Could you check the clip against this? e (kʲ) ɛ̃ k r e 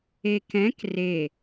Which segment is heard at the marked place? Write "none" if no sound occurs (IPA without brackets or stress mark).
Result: k